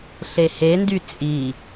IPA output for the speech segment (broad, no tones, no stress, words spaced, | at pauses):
ɬehendy t͡sʼi